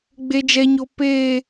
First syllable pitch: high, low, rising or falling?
high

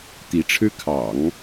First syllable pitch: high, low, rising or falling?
rising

